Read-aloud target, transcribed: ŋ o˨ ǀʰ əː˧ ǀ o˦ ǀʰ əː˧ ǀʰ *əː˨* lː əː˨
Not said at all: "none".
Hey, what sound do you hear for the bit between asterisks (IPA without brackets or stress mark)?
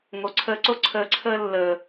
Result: əː˦